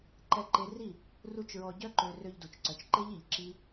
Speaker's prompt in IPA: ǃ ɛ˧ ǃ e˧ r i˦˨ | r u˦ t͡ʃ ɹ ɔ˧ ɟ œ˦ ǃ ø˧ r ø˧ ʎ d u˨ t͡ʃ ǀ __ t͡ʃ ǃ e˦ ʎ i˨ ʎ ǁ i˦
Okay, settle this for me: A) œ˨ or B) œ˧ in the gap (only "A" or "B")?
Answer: A